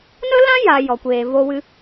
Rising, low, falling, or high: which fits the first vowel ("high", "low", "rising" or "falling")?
high